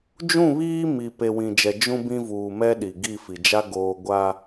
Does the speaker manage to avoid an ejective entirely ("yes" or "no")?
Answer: yes